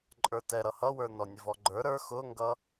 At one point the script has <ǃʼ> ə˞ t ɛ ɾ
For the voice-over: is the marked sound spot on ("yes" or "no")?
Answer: yes